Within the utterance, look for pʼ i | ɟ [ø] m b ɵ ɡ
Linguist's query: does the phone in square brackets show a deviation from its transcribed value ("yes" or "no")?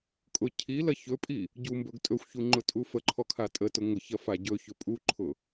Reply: yes